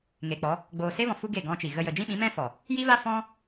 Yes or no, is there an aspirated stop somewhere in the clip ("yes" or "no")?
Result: no